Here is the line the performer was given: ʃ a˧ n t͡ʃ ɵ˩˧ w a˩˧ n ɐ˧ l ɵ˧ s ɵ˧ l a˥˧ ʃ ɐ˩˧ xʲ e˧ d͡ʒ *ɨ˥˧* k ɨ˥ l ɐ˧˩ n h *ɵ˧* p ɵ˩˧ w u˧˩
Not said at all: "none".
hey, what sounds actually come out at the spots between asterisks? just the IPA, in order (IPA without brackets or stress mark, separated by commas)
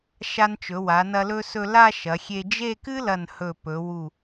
e˥˧, ɵ˧˩